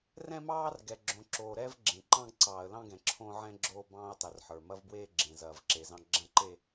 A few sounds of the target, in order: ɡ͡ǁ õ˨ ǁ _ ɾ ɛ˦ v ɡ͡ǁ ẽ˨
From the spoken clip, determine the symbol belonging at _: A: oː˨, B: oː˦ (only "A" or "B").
A